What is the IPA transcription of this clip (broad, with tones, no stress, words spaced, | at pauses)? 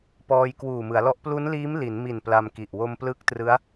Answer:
pɔː˧j kwuː˨˩mɯ˩˦a̯lɔ˦˥ʔ plu˦˥nliː˦˥m li˩˦nmi˨˩n pla˧mki˨˩ʔ wo˧mplɯ˦˥k̚trɯ˦˥a̯